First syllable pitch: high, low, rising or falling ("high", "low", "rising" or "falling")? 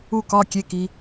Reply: falling